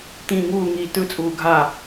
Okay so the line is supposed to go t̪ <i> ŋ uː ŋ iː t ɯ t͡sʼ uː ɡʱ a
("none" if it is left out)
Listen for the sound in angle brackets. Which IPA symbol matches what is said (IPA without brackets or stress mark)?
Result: ĩ